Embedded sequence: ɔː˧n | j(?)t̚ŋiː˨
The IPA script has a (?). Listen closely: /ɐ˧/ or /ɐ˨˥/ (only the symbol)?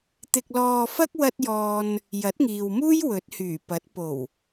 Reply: ɐ˨˥